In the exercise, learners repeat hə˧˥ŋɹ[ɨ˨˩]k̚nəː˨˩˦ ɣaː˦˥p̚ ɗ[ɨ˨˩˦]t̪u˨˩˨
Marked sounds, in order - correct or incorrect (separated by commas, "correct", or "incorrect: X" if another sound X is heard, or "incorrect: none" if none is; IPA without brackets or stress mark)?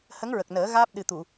incorrect: ə˨˩, incorrect: ɨ˨˩